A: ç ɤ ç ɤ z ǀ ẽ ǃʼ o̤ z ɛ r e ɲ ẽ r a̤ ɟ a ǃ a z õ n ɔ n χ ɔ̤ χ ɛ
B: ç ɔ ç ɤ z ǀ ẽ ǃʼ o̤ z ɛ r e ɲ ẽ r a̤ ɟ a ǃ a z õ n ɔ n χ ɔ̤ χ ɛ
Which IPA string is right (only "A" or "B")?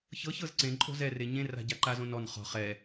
A